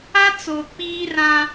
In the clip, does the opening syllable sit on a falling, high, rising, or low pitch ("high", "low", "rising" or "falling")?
high